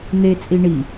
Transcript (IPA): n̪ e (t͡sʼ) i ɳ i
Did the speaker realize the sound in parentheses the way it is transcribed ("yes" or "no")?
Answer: yes